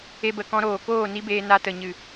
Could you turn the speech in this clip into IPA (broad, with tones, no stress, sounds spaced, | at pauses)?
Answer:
e˧ b ə˨ k ɔ̃˧ ɾ oː˨ k oː˦˨ n i˦ b eː˧ n a˧ t ə˨ ɲ ɨ˨